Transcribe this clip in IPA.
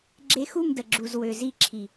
ɡ͡ǁ e˧ x u˦˨ m d ə˨ ɡ͡ǁ u˨ z w ø˨ z i˦˨ ǁʰ i˨

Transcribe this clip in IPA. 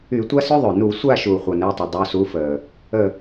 y˧˩˧ tʷ a˦ s ɵ˦ ðˤ ø˩ n u˧˩˧ sʷ a˦˨ ʃ uː˩ χʷ ʌ˩ n e˩˧˩ tˤ ɵ˩ dˤ u˩˧˩ s u˨˦ f əː˩ | ə˦˨

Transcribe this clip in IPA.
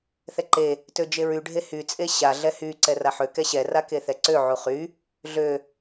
θ ɛ ǃ e | t ø d͡ʒ e ɹ y ɖʱ e h y t͡sʼ e ɕ a ɮ ɛ h y ǀ ɛ r a ħ ø k ɛ ɕ ɛ r a k e θ ɛ ǀ ø ʕ u χ y | ɮ ø

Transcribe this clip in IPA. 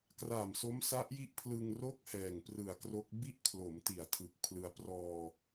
k r a˨˩ m s o˦˥ m s a˦˥ ʔ j i˦˥ ʔ pʰ l ɯ˧ ŋ r o˥˩ k̚ h ɛː˨˩ ŋ p r ɯ˨˩ a̯ k r o˦˥ k̚ b i˥˩ ʔ kʰ l o˩˦ m t i˨˩ a̯ tʰ ɯ˨˩ k̚ pʰ l ɯ˧ a̯ p r ɔː˧

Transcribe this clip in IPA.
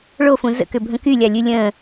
ɭ o f ũ z ə̰ k ʏ bʱ ə̃ k y lʲ a lʲ ɨ lʲ ə̃

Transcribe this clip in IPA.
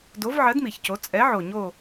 d o˨˥ v ʕ ɜ˨˥ d m i˨˩ ç c o˨˥ t͡sʼ ɛ˨˥ ʕ o˨˩ ɲ o˦˨

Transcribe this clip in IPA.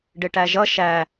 ɖ ɪ ʈ æ ʒ ʌ ʃ æ

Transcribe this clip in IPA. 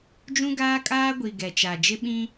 d͡ʒ ũ˦ ɡ aː˦ kʼ aː˦ ɡʷ i˨ ɡ ɛ˨ t͡ʃ a˨ d͡ʒ ɪ˦ ɓ ĩ˦

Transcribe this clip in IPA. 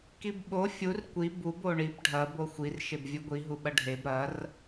k i b ɓ o fʲ u r kʷ i b u b o ɳ i b ɖʱ ɐ b o xʷ i r ʃ e b vʲ u ɡʷ i ɦ u ɓ ɐ ɖʱ e b ɾ ɐ r

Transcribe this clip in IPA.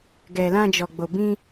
ɡ ɛ˧ l ã˦ d͡ʒ ɔ˧ ɡ͡b o˧ b ĩ˦

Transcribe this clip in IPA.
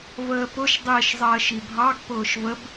v əː p ʊ ʃ dˤ iː ʃ zˤ əː ʃ i bʱ ɑ ɡ p ʊː ʃ v ə b

